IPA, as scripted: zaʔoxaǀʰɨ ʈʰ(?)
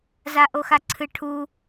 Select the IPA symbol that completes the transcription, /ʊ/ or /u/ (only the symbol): u